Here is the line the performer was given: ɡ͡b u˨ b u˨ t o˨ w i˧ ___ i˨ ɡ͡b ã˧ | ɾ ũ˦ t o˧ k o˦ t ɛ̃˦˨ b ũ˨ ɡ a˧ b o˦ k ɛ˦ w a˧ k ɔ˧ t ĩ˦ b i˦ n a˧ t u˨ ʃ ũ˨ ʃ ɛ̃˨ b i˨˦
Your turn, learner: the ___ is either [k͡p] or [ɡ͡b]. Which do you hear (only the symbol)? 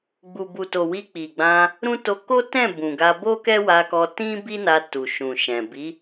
k͡p